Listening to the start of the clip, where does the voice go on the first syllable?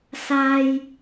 high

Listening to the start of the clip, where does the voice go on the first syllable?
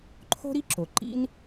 high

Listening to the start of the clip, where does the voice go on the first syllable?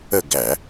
falling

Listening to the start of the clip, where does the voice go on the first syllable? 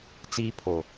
high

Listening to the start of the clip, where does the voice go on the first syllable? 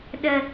high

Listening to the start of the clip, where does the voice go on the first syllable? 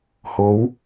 rising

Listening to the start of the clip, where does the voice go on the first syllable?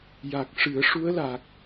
low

